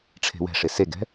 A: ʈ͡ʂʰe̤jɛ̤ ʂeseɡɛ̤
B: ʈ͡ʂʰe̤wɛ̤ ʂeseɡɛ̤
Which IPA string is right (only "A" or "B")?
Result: B